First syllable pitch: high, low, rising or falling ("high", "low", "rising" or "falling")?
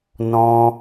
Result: high